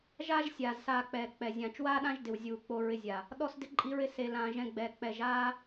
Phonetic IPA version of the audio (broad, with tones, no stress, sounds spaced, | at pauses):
ʒ aː˦ ʒ sʲ aː˨ z s aː˧ k͡p ɛː˨ k͡p ɛ˨ zʲ ãː˨ t͡ʃ w aː˦ ɗ ã˦ ʒ d ɪ˨ w zʲ uː˨ k͡p o˧ ɹ ɪ˧ zʲ a˨ | ɗ ɔ˦ s d ɪ˧ ǃʼ i˧ ɹ ɪ˧ s e˨ l ãː˨ ʒ ɛ̃˧ ɡ͡b ɛː˨ k͡p ɛ˨ ʒ aː˦